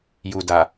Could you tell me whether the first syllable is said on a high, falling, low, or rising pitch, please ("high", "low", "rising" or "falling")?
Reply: low